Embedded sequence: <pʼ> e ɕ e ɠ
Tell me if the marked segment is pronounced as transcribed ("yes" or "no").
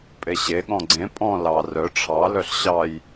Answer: yes